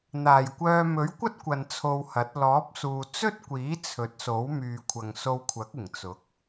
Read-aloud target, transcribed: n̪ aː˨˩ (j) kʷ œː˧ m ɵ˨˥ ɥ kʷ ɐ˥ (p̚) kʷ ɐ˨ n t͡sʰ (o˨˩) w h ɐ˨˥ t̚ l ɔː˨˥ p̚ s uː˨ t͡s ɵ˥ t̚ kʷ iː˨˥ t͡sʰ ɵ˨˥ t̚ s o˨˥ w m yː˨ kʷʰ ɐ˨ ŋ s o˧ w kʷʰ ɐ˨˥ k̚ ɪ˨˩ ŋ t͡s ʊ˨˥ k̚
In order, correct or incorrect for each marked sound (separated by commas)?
correct, incorrect, incorrect